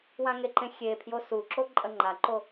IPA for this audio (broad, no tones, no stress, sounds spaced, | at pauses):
w ã ŋ e ǃ ẽ xʲ e pʰ j o s u ǁ o ǃʼ ɐ ŋ͡ǃ a ǃ o